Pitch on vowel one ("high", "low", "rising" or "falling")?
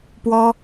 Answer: high